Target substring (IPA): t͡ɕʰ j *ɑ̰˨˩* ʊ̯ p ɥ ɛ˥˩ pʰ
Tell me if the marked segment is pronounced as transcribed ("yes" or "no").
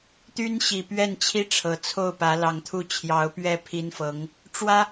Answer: no